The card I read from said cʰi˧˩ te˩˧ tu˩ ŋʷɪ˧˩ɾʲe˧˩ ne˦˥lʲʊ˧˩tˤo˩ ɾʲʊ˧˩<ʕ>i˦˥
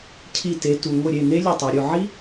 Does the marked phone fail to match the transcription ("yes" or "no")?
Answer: no